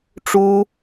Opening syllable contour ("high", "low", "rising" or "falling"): high